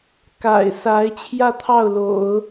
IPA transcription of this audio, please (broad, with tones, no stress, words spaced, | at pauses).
ka̰˨˩ɪ̯sa˧˥ɪ̯ t͡ɕʰjä˥˧t̪ʰɑ˥˩ʊ̯lo̰˨˩˦ʊ̯